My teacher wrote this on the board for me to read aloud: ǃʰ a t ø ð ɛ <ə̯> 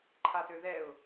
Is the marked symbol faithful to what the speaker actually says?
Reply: no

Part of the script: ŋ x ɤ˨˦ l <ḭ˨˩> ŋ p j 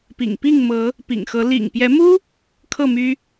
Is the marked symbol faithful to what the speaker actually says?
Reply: yes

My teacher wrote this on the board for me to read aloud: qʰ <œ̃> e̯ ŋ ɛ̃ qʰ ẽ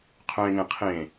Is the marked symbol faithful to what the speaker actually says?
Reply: yes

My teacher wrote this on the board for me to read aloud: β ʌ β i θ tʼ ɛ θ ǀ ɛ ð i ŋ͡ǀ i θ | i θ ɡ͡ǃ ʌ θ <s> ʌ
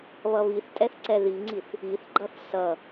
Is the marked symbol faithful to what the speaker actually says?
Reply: yes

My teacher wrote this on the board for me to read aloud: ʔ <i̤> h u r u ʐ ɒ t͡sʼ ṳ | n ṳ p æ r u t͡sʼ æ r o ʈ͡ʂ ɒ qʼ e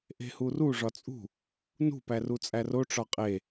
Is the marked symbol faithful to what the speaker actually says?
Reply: no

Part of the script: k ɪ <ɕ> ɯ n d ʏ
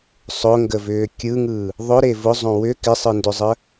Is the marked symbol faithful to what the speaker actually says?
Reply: no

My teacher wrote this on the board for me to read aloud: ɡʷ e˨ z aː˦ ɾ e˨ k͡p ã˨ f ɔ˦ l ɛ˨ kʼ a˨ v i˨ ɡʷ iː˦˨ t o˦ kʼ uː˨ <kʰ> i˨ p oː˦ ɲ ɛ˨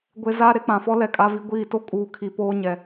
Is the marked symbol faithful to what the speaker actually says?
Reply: yes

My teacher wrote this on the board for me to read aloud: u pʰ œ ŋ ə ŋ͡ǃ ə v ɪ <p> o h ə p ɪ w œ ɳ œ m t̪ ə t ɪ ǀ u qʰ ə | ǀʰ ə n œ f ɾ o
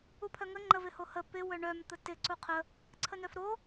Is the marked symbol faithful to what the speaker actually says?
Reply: no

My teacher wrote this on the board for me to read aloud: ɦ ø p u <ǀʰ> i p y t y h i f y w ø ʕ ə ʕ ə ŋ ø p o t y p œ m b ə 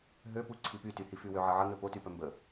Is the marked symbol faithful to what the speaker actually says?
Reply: yes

